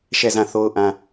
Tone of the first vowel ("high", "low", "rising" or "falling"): falling